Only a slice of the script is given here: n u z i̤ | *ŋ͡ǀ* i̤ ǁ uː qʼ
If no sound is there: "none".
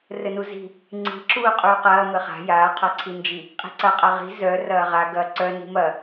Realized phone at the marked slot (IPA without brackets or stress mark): ŋ͡ǀ